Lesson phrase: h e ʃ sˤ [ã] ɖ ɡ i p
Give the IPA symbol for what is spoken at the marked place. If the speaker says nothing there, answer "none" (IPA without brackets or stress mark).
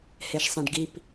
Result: ã